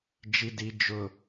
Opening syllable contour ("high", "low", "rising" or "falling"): low